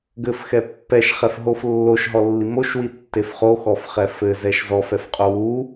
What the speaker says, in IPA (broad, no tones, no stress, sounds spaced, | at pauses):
ɡ ɘ f x ɛ pː ɛ ʃ χ ɛ f ɦ o f lː o ʃ ɦ ɔ lː i m o ʃ w i tː e f χ o x ɔ f χ ɛ f ɘ z ɛ ʃ z ɔ f ɛ f qʼ o w u